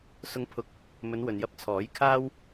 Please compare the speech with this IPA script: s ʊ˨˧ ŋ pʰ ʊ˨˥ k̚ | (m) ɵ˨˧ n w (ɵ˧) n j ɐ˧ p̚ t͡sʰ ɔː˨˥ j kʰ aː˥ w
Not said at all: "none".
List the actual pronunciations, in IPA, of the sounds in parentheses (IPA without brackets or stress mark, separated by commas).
m, ɵ˨